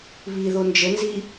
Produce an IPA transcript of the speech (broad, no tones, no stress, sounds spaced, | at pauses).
β i ð o n d͡ʒ ə n z i